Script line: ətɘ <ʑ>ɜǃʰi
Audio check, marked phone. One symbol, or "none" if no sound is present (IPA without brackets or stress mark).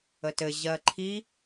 ʑ